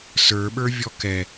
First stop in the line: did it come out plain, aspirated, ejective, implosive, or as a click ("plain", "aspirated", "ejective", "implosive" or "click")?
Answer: implosive